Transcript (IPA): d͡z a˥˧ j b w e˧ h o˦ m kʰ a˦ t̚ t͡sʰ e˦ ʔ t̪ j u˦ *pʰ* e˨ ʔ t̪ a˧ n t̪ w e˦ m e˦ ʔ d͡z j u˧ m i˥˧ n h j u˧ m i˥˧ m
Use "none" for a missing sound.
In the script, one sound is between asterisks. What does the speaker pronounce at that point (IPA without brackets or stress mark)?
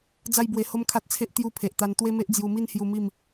pʰ